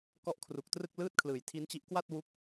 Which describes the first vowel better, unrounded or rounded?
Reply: rounded